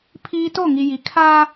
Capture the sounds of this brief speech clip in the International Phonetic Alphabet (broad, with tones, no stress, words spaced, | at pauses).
pʰiː˦ to˦˨ŋi˨ ji˨kʰaː˦